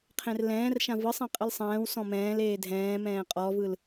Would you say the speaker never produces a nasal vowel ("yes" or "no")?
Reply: no